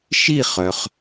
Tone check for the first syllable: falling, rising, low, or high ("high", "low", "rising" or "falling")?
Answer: falling